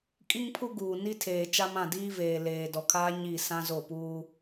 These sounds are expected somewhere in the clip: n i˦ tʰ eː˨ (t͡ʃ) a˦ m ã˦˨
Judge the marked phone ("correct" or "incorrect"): correct